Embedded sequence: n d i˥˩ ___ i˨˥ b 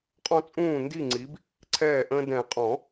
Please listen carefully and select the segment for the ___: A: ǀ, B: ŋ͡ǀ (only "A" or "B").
B